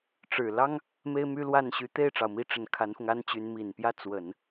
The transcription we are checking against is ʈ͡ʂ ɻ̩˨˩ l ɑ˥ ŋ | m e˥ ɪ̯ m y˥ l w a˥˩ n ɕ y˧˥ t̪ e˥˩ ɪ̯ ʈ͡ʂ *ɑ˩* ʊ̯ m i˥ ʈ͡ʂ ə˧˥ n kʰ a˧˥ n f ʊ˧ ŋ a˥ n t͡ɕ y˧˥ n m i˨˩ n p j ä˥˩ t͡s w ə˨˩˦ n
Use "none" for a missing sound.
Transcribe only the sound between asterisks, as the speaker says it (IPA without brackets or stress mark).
ɑ˩